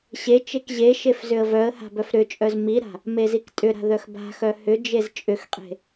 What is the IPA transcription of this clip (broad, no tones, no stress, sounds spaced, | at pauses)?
ɕ e t͡ʃ e k ʑ e ʃ e f z ʏ ə̯ v œ ə̯ h a̤ b œ f ɾ ʏ t͡ʃʼ œ z m i ɾ a̤ | m e z i k tʼ ʏ ɾ a̤ ð œ x b a̤ x œ h ʏ d͡ʒ e z t͡ʃʼ ʏ x qʼ e̤